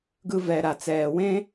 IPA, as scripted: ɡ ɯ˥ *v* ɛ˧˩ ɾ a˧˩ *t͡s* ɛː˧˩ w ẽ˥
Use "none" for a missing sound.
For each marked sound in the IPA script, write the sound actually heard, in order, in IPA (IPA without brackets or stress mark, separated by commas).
v, t͡s